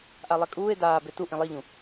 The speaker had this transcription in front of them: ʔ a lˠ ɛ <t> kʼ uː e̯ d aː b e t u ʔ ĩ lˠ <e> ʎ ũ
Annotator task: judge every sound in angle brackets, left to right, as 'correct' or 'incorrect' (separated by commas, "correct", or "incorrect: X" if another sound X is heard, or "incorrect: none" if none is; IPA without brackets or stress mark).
incorrect: none, incorrect: i